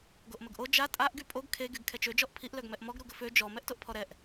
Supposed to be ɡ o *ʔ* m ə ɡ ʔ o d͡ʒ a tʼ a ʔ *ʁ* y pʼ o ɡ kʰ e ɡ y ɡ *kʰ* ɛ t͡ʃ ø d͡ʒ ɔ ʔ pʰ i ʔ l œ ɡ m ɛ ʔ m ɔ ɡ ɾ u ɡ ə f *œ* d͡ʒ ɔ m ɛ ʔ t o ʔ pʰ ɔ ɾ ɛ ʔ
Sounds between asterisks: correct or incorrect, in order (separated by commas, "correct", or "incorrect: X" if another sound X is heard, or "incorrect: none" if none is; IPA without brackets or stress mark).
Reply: correct, incorrect: ɡ, correct, incorrect: ø